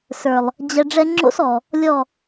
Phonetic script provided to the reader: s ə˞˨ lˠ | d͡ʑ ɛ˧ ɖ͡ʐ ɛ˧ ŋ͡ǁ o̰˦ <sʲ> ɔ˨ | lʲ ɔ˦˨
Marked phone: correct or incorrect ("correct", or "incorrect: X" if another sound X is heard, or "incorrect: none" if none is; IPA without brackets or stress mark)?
incorrect: s